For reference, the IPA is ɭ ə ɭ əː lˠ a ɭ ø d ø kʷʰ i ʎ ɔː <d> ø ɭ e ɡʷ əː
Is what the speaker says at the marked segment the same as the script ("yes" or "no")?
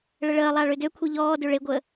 yes